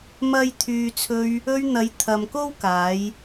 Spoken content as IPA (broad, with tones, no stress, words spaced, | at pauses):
mɐ˥j t̪ʰyː˨t͡sʰɵ˧ɥ | ɵ˧ɥn̪ɐ˨˧j t̪ʰɐ˨mko˥wkaː˨˧j